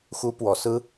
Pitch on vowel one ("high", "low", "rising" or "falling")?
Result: high